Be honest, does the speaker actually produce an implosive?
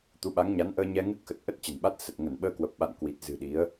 yes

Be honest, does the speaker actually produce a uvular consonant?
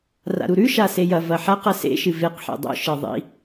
yes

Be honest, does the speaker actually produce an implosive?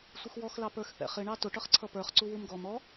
no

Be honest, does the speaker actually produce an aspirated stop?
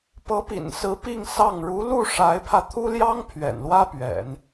yes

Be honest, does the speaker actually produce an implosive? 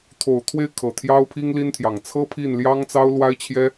no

